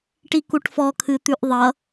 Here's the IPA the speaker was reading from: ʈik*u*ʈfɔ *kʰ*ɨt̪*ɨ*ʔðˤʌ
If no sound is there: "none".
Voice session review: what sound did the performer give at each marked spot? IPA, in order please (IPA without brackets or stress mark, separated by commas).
u, kʰ, ʉ